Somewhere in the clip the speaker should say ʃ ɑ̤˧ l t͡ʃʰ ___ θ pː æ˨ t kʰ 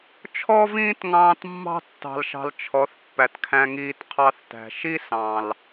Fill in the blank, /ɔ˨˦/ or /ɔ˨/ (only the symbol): ɔ˨˦